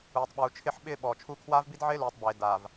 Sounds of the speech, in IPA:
uː˨ tˤ ɓ uː˨ t͡ʃʰ ɪ˦˨ ħ ɓ ɪː˦ ɓ ɔː˨ t͡ʃʰ u˦ kʰ w aː˦ v b i˦ d ʕ ɪː˦ l uː˨ tˤ b eː˨ d aː˨ v

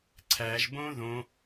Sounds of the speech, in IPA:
ǀʰ æ ʒ b õ ð õ

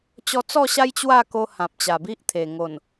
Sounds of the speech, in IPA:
t͡ɕ ɔ˧ t͡s ɔ˥˧ ɕ a˦ j t͡ɕ w a˥˧ k o˧ h ã˨ p̚ t͡ɕ a˨˩ b i˦ ʔ t̪ʰ e˨˩ ŋ o˨˩ n

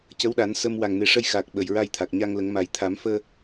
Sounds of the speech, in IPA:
c ə˧˥ w ɗ a˨˩˦ n s ə˧ m w a˨˩ ŋ n e˨˩ ʂ ə˧ j x aː˨˩ k̚ ɓ ə˨˩ j ɹ a˧ j t̪ʰ a˨˩ k̚ ɲ a˧ ŋ l ə˨˩˦ ŋ m a˨˩ j t̪ʰ a˨˩˦ m f əː˧

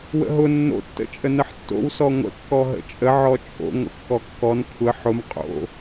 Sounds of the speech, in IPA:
w ə̰ ɦ ʊ nː o̰ tː ə̰ t͡ʃʼ ə n ə ħ tː o̰ w s ɔ ŋʷ ə̰ kː ɔ ɦ ə̰ t͡ʃʼ ə ʕ ɔ t͡ʃʼ o̰ ŋʷ ə̰ kː ɔ kː ɔ n kʷʰ ə ħ ʊ m qʼ o̰

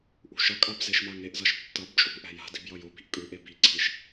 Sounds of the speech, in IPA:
ʔ ṳ ʃ ʌ kʼ a b z e ʃ m a ŋ e ʔ z ʌ ʃ tː ʌ b t͡ʃʼ ṳ ʔ ɛ̤ j a̤ d i̤ b j ʌ j o b i̤ ʔ kʼ ɯ ʔ e b i ǀʰ i ʃ

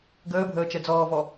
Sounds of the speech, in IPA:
ɡ əː bʱ əː t͡ʃ ɛ d͡z ɔː v ɔ

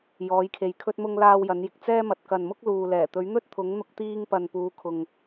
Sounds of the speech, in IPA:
j ɔː˨˥ j kʰ e˨ j kʰ ɵ˥ t̚ m ʊ˥ ŋ l aː˥ w j ɐ˨˥ n j ɪ˨ k̚ t͡s ɛː˥ m ɐ˨ t̚ k ɐ˨ n m ʊ˥ k̚ l uː˨ l ɛː˨˩ t̪ ɵ˨˥ ɥ n̪ ɵ˥ t̚ t̪ʰ ʊ˨˥ ŋ n̪ ʊ˥ k̚ t̪ iː˥ ŋ p ɐ˨ n p uː˨˧ kʰ ʊ˨ ŋ

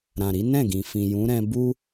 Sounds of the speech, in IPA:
ɾ ã˨ ɾ i˨˦ n ɛ̃˦˨ ɡ ĩ˨ f ĩ˨ j ũ˨˦ ɾ ɛ̃˦ b u˦

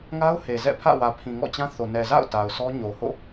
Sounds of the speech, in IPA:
ŋ a˦ ʊ̯ h e˨ z ɛ̰˦˨ pʰ ä̰˦˨ w ä˨ pʰ ĩ˨ ŋ ɔ̰˦˨ t͡ɕ ã˦ θ o˨ n ɛ˨ z a̰˦˨ ʊ̯ t a˨ ʊ̯ sʰ ɔ˦ ɲ o˨ h o̰˦˨

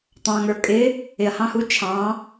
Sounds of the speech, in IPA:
tˤ ɑ̃ ŋ ə˞ kʼ ɪ | ɪ ɐ̯ h ɑ̃ h u t͡ʃʰ ɑ̃

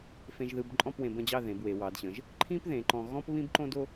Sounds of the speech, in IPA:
f ẽ˧ ʒ ð ɯ˧ b ǃʼ ɔ̃˥˧ p w ẽ˧ b ə̃˥˧ d͡ʑ ɑ˥˧ ð ẽ˩˧ b w e˩˧ w ɑ˩˧ d ɕ ə̃˩˧ ʒ | ǃʰ ĩ˥ p ð ẽ˩˧ ǃ ɔ̃˧ ɣ ɔ̃˥ p β ĩ˥ b ǃ õ˥ d o˥

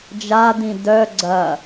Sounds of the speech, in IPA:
d͡ʒ a d ĩ d œ ɡ͡ǀ ɐ

